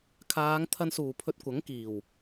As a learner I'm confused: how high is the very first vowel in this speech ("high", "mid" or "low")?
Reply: low